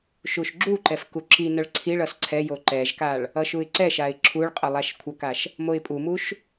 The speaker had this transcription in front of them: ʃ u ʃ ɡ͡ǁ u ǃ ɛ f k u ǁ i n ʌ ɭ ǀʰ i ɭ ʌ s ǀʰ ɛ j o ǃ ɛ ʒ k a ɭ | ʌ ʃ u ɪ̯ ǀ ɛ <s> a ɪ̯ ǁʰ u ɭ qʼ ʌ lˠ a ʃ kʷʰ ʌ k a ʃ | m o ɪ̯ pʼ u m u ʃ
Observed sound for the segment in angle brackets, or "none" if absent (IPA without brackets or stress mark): ʃ